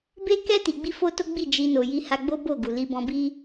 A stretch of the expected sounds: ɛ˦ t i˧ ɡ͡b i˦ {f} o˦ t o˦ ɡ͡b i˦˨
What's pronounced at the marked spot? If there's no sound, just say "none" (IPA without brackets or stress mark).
f